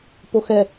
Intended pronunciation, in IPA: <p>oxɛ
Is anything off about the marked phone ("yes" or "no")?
no